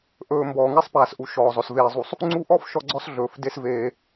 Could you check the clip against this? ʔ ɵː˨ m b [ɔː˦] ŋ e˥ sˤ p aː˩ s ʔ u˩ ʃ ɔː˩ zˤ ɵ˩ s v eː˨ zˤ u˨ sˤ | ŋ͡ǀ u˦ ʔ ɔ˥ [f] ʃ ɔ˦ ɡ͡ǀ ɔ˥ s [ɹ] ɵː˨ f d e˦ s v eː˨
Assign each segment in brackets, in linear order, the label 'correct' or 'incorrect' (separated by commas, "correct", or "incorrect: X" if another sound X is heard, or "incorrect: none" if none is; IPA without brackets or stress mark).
incorrect: ɔː˩, correct, incorrect: ɮ